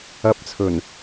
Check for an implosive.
absent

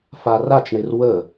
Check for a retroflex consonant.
present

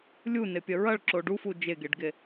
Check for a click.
present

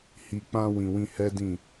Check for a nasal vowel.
present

